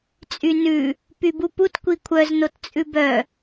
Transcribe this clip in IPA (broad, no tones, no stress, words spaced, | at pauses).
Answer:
t͡sʼynʉ | pybuput kʷikʷʰœz nott͡sʼʉbœ